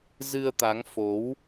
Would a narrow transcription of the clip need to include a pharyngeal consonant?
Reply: no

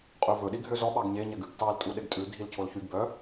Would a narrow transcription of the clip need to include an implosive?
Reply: yes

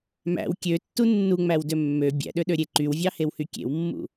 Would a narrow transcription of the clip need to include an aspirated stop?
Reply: no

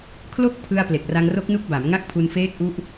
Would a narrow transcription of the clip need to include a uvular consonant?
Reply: no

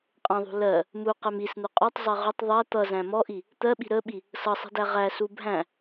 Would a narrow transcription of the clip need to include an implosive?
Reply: yes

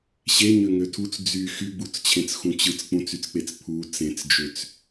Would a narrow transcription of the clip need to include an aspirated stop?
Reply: yes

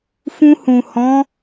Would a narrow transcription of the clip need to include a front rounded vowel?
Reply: no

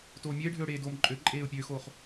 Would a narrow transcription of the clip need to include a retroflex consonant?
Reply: yes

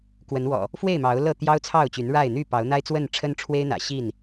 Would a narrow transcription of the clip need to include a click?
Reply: no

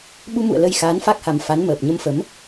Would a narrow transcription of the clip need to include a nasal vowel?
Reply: no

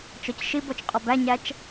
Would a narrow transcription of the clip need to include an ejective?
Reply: yes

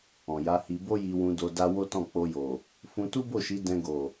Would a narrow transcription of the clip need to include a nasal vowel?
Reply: yes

